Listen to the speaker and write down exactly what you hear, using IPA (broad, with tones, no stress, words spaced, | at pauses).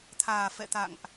t̪ʰaː˨˩fɛ̰˧˨t̪a̰˧˨ŋʔ